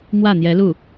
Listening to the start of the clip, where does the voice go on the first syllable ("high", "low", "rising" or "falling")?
falling